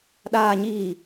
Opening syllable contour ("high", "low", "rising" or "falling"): low